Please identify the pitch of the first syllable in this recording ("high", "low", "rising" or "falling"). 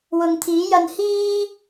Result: low